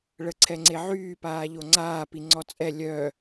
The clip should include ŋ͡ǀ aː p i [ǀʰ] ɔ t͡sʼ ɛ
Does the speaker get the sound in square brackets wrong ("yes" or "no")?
yes